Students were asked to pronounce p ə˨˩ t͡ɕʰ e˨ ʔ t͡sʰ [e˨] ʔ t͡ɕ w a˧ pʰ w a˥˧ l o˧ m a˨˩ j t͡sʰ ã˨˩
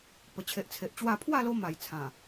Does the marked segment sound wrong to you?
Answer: no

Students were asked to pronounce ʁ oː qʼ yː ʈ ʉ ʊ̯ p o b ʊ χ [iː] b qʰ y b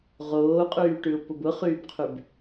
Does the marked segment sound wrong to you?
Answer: yes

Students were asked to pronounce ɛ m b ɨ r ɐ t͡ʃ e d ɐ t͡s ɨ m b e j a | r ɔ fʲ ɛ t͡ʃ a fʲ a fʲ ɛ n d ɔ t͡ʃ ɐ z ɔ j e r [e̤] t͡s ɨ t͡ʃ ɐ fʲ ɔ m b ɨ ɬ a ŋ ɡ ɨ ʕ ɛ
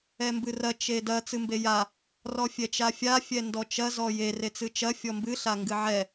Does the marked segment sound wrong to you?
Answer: yes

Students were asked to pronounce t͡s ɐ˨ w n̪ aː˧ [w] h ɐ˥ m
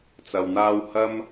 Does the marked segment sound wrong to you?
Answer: no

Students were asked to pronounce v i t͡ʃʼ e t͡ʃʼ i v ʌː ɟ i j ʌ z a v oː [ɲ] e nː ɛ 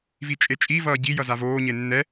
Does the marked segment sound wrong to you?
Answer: no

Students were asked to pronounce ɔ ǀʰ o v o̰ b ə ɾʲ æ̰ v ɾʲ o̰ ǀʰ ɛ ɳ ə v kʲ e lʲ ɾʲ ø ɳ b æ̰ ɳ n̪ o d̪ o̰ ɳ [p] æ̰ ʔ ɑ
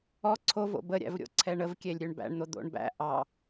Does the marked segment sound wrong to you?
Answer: yes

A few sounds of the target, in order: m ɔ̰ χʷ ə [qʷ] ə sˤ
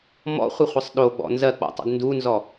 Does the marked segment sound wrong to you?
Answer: yes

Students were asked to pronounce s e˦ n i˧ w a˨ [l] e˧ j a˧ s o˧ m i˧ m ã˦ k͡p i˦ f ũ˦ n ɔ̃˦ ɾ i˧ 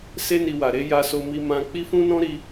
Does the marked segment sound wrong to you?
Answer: yes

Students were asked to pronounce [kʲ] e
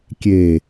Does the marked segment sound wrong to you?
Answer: no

